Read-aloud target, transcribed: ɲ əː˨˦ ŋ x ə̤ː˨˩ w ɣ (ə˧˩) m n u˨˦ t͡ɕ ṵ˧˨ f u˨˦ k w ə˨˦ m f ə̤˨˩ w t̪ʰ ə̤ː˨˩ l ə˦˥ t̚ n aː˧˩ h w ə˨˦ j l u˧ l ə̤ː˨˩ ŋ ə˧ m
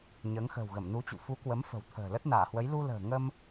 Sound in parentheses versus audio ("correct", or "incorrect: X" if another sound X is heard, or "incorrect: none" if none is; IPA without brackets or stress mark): correct